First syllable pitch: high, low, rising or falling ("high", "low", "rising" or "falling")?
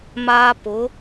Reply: high